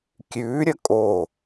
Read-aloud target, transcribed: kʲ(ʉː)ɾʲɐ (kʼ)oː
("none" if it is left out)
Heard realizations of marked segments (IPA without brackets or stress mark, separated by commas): ʉː, kʼ